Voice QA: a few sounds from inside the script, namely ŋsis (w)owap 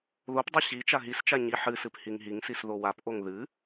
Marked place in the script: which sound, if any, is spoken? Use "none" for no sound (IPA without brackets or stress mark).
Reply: ð